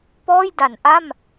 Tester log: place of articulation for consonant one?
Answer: labial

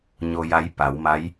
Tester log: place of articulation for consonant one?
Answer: palatal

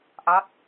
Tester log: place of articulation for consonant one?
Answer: glottal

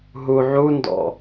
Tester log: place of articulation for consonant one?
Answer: glottal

